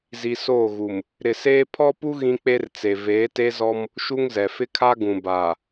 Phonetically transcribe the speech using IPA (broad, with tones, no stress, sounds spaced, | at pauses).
z i˨ s oː˦˨ ɣ u˨ m | ɾ ɪ˨ s eː˦ pʰ ɔ˦ p u˦ ɣ ĩ˦ k͡p e˦ r t͡s e˨ v eː˨˦ t e˦ z ɔ˦ m | ʃ u˦ ŋ z ɛ˨ f ɪ˦ kʰ a˦ ɡ ũ˨ b aː˨